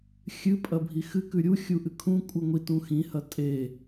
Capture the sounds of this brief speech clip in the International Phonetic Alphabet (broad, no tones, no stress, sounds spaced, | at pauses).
xʲ ɨ pʼ ɐ bʱ i x ɨ k ʉ ɾʲ u xʲ u ʔ ɨ kʰ ũ kʷʼ ɨ ŋʷ i t ũ x ĩ h ɐ tʼ e